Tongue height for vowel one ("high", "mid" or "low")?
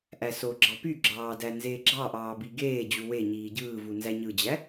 low